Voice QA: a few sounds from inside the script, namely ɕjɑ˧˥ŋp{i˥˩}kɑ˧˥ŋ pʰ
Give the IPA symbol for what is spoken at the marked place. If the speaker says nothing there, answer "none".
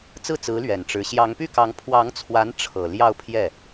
y˥˩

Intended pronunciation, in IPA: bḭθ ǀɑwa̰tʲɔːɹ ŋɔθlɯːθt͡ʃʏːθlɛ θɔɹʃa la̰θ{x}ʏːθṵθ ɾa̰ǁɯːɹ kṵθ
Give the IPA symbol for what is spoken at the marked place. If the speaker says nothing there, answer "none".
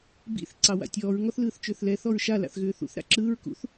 ɣ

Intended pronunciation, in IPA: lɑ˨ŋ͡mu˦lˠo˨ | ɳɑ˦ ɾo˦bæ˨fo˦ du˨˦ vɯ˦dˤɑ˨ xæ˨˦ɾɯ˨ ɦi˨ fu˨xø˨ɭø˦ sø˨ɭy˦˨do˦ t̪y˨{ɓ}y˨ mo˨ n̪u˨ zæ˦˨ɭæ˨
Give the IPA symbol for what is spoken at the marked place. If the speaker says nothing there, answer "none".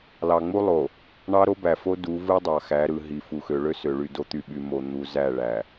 ɓ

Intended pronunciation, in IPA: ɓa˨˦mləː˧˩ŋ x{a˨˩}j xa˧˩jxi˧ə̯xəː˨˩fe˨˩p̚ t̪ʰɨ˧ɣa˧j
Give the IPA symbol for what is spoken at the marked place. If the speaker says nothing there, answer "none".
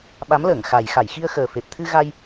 a˨˩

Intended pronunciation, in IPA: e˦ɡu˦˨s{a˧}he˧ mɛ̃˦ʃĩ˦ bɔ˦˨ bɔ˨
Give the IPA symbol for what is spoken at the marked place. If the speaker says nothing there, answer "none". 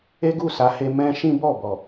a˨˦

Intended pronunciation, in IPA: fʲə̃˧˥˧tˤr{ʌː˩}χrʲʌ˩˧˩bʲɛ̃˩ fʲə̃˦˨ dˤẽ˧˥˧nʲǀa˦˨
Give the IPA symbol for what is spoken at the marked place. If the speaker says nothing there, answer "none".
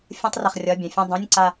ʌ˩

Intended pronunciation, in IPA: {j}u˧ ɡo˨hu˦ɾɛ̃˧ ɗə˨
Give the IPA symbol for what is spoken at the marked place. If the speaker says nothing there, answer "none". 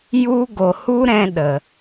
j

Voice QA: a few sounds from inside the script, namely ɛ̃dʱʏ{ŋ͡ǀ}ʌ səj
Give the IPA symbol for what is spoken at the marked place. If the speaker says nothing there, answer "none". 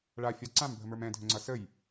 ŋ͡ǀ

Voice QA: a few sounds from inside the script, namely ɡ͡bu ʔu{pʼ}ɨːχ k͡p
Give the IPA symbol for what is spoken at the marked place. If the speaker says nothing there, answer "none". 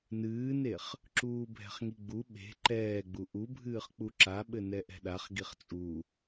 bʱ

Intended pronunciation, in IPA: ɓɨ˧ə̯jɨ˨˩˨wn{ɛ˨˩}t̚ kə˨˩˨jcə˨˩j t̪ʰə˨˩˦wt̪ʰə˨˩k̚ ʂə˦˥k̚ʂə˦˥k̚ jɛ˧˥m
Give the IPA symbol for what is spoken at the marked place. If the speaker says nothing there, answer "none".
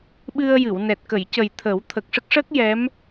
ɛ˨˩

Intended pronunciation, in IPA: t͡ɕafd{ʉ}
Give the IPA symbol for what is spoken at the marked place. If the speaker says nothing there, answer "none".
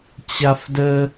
ə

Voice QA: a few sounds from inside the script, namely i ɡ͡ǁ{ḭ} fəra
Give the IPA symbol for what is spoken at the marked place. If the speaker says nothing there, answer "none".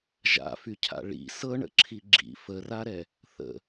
ḭ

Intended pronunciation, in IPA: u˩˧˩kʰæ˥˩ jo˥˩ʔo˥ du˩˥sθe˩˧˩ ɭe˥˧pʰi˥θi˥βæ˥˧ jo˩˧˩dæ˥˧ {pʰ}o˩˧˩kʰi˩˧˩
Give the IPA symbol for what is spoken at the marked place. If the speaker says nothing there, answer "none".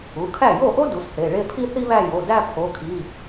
pʰ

